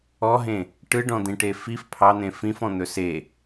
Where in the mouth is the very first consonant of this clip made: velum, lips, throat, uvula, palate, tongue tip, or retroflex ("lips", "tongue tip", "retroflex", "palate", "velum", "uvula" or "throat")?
throat